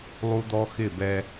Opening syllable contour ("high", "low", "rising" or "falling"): high